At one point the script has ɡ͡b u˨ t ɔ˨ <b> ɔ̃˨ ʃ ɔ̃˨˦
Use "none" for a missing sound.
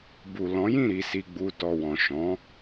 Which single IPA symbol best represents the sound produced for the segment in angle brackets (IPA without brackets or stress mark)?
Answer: w